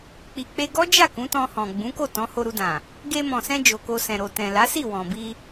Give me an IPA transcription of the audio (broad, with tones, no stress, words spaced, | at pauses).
k͡pi˨k͡pe˧ɡɔ˦d͡ʒa˦˨ kũ˨˦tɔ̃˧hɔ̃˨ ɡ͡bũ˨˦ko˦˨ tɔ̃˨˦ho˧ɾu˧dã˨ | ɡe˧mɔ̃˨sɛ̃˧ d͡ʒo˨ko˧sɛ̃˨ ɾo˨ tɛ̃˨la˨˦si˦˨ wɔ̃˨bi˧